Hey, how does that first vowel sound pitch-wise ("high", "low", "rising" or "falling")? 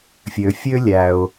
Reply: low